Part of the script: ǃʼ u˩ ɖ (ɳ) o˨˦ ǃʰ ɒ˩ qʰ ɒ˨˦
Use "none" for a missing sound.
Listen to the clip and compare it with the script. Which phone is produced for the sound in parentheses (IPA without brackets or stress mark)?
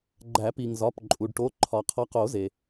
ʈ